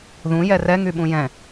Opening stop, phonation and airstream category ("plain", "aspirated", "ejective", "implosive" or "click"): implosive